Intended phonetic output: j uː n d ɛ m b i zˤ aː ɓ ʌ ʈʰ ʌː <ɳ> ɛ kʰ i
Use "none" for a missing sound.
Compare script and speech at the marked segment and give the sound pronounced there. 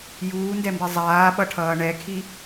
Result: ɳ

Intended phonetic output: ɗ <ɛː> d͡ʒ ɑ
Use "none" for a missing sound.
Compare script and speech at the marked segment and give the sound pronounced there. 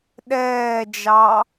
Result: ɛː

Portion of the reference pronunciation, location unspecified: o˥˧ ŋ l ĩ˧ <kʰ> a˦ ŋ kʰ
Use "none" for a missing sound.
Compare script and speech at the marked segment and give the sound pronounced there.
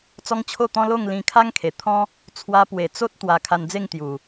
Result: kʰ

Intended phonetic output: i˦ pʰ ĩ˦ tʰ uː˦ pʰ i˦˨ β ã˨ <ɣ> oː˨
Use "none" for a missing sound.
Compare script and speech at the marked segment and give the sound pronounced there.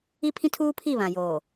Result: j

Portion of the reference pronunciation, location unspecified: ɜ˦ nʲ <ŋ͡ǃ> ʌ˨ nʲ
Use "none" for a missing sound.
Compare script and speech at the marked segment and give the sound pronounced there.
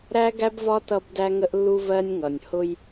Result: ŋ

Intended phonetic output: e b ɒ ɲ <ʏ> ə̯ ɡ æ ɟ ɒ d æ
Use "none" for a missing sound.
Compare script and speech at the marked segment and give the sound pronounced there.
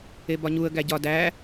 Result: u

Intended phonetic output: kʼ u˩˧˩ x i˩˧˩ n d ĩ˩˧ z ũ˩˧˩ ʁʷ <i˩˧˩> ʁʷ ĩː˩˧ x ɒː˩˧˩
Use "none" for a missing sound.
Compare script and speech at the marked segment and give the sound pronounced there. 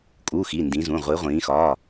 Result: i˩˧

